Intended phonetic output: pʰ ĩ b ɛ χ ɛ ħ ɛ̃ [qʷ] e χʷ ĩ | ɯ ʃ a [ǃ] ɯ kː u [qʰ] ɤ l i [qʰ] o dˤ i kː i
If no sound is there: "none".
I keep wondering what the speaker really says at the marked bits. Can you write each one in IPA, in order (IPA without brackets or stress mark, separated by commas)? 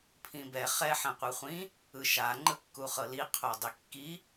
qʷ, ŋ͡ǃ, χ, qʰ